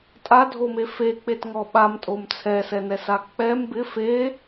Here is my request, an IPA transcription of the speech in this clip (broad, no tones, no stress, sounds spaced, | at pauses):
tʼ a dʱ o m e f e k͡p e t ŋ ɔ ɓ a m tʼ o m t͡sʰ ɛ s ɛ n ɛ s a k͡p ɛ m b ɪ f e